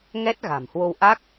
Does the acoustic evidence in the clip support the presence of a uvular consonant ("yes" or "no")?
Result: no